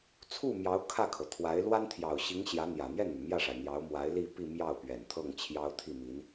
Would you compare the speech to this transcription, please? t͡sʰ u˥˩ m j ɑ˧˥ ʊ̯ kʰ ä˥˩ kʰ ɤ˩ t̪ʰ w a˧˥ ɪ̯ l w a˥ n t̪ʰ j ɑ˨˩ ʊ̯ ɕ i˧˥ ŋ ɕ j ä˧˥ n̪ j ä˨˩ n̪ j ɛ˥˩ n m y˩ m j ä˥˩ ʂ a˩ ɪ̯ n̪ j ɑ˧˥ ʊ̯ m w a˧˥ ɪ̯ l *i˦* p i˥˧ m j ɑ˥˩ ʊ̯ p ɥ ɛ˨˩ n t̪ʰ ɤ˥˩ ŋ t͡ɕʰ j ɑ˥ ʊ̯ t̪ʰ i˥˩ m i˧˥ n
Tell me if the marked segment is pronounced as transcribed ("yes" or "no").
no